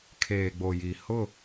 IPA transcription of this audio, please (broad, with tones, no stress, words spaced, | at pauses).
kʰeː˨ɡ͡bo˨ji˨ hʊ˦˨